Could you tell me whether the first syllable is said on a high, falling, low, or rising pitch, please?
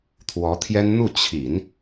rising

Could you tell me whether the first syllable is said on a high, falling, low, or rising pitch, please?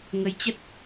rising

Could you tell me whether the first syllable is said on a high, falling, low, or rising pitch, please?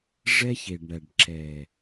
high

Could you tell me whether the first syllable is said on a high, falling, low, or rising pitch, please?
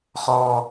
low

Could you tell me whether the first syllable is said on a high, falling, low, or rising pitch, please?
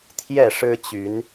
falling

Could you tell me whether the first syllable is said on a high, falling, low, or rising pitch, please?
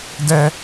high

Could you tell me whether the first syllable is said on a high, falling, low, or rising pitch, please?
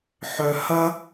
low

